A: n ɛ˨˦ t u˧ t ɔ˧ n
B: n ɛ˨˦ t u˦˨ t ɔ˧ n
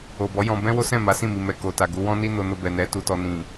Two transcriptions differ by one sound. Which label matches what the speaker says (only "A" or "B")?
A